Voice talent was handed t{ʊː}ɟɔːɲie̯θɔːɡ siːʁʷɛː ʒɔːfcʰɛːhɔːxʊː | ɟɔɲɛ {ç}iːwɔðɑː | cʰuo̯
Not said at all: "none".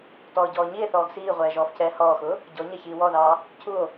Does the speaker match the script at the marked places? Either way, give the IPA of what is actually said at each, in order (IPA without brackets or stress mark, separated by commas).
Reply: ɔː, ç